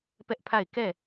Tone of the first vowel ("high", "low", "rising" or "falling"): high